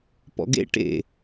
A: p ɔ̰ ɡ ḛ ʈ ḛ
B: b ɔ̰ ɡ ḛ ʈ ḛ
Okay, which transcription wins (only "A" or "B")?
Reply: A